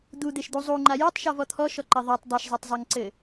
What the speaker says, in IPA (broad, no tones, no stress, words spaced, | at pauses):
d̪ud̪eʃd̪u zˤuŋ͡ǃa jutˤʃɔvɔ t̪ʰɔʃɔǃɘ ðˤatˤ dˤeʃzˤatˤzˤaŋǀɘ